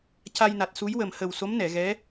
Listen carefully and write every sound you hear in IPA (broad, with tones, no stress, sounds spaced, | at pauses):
c a˧ j n a˨˩ t̚ s u˧˥ j w ə˨˩ m h ə˨˩ w s o˧˥ m n ɛ˨˩˨ ɣ ɛ˧˥